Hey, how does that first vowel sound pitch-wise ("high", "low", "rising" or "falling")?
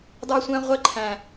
high